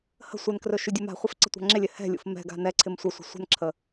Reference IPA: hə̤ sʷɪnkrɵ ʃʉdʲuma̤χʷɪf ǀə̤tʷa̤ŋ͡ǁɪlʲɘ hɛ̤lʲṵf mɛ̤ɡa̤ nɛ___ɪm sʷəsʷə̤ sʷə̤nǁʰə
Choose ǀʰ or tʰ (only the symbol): ǀʰ